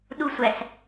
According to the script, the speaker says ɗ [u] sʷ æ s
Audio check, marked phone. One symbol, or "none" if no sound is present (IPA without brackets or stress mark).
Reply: u